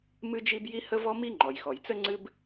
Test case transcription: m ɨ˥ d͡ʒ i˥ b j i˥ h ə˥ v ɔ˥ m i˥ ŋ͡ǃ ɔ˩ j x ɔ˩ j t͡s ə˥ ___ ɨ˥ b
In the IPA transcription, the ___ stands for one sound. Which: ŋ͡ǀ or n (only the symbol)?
ŋ͡ǀ